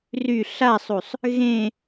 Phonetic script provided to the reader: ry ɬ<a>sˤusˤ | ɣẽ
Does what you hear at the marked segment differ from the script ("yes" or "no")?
no